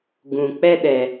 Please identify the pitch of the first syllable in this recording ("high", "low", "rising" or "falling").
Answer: low